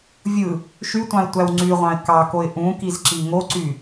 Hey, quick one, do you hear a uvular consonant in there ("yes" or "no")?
yes